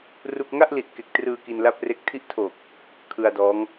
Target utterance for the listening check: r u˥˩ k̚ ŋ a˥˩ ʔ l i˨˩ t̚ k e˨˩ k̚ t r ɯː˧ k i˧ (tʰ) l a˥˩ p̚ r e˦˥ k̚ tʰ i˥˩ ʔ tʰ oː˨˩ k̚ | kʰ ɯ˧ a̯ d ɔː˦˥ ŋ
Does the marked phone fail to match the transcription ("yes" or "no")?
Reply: yes